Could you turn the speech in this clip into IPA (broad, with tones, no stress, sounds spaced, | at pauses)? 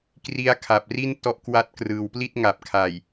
k r i˦˥ a̯ kʰ a˨˩ p̚ r i˥˩ n t ɔ˦˥ ʔ k w a˦˥ t̚ k r ɯː˩˦ w p l i˥˩ t̚ ŋ a˨˩ p̚ kʰ a˨˩ j